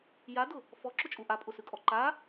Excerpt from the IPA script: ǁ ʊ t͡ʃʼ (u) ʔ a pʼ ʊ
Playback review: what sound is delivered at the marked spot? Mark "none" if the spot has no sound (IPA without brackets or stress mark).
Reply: u